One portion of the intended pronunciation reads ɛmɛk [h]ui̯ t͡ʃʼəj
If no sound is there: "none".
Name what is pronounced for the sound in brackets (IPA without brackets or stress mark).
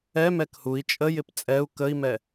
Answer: h